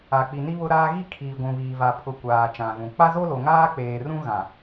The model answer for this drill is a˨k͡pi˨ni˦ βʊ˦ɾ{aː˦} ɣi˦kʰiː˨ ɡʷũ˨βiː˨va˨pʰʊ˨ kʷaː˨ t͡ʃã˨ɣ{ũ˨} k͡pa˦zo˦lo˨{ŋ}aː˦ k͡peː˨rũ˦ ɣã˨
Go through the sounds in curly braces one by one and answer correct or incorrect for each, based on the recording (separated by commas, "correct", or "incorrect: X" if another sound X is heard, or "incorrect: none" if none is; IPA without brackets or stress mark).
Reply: correct, correct, correct